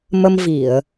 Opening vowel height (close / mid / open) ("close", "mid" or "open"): mid